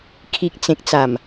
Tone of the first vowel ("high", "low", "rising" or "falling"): low